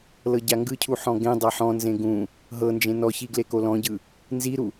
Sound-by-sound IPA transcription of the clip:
l ɤ ɟ a ŋ ɡ ɯ cʰ u ħ ɔ̃ ɡ ẽ dˤ a ħ ɔ̃ n z ẽ ɡ ũ | ɦ ɤ n d͡ʒ ẽ n ɔ ç i ɡ l e k o l ɔ̃ ɟ ɯ | n z i ɾ u

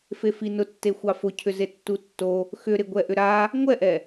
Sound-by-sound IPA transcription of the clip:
f e f i n ʊ tː e xʷ ɑ f ʊ cʰ ʏ z e tː u tː o | x ʏ ɾ ɪ ɡʷ ɛ ʔ ʏ ɾ a | ŋʷ ɛ ʔ ɛ

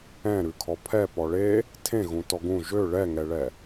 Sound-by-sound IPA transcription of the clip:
ɛ̃ ɾ ʉ kʰ ɔ pʰ ɛ p ɔ ɭ e | tʰ ẽ ɣ ũ t ɔ ɡ ũ ʒ ø ɭ ɛ ŋ ɛ ɭ ɛ

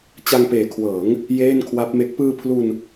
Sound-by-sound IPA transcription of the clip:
t͡ɕ a˧ ŋ p eː˨˩ kʰ w ɤː˩˦ ŋ | j eː˥˩ n kʰ w a˦˥ p̚ m e˦˥ k̚ p ɯː˧ pʰ l u˧ n

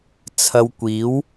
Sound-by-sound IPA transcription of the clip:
t͡sʰ ɐ˧ w kʷ iː˨˥ w

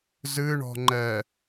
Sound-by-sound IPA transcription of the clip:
z ɨ ɳ ɔ̤ ŋ͡ǃ ɛ

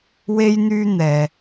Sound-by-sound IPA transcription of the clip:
w e˥ j n̪ yː˥ n̪ ɛː˨

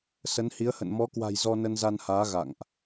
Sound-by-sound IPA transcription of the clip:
s ə˨˦ n h i˨˦ ə̯ h ə̰˧˨ n m ɔ˨˦ k w a̤˨˩ j z ɔ˧ n ə˧ n z a˧ n h aː˨˦ ɣ a̰˧˨ ŋ ʔ

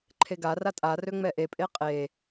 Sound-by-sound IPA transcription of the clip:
ǃʰ e ɡ a r a tʼ a r ø ŋ͡m ɛ ʔ e pʼ e qʼ e

